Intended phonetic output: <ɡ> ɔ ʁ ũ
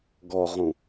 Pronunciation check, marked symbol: correct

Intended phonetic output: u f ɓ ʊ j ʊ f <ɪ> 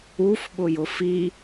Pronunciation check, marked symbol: incorrect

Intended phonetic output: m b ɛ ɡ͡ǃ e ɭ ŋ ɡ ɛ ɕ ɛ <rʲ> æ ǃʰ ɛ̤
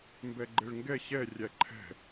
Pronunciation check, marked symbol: correct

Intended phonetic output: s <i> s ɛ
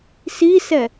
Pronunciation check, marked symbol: correct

